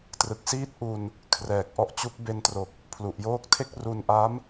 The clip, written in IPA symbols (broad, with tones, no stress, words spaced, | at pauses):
trɯ˨˩k̚siː˦˥t̚ʔu˧n | kʰrɛː˨˩k̚ʔɔ˦˥ʔt͡ɕu˦˥k̚ be˧ntro˨˩k̚ | pʰlu˨˩ʔjoː˦˥k̚tʰe˥˩k̚ ru˧nʔa˦˥m